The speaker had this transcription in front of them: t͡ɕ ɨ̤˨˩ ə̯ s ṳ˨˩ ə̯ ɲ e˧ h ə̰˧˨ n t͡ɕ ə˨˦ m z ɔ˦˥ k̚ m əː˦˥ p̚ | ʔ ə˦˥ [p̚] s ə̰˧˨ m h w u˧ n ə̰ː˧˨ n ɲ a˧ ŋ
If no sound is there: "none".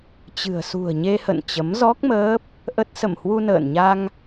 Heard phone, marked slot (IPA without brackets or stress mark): t̚